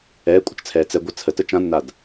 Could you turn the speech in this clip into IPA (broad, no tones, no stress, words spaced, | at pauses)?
ɛːkʷʼət͡ʃt͡sʰɛː t͡sɛ ɡʷə t͡sʰətə t͡ʃãnːad